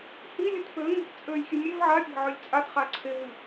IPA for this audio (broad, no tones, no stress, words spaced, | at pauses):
hilʲɯt pøŋe̤t t͡sʼølʲxʲɨ mʲev ʕapʲa̤ʕølʲ t͡sʼatχa ǀʰeɦɨ